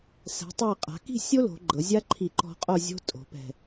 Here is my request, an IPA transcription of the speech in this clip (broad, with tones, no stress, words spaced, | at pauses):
sɛ̤˩˧tˤa˧˩qʼa̤˩˧ ki̤˥˧sʲo˥lo̤˩˧ɡ͡ǃɤ˩˧ zʲa˥ǃʰi˧˩ ǃɔ̤˧qʼo˥˧zʲo̤˥ tʼo̤˩˧pɛ̤˧˩